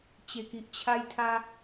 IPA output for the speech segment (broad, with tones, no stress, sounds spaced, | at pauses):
t͡ɕ e˨˩ k i˨ ʔ t͡ɕʰ a˧ j t̪ʰ a˧